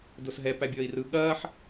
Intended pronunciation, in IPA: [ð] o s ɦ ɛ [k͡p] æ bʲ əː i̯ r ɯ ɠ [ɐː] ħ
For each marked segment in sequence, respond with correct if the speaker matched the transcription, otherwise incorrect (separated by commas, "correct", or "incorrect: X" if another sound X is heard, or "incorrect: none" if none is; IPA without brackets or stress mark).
incorrect: d, incorrect: p, correct